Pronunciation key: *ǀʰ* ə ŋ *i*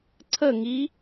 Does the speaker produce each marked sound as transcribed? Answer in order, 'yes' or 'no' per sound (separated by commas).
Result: yes, yes